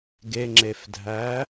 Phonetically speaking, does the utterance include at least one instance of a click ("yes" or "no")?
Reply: yes